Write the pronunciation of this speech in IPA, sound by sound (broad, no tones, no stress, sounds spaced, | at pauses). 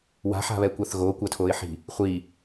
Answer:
w a̤ ħ a̤ β ɛ kʷ a θ ɣ o kʷ ɐ tʰ o ɪ̯ ħ i̤ | χʷ i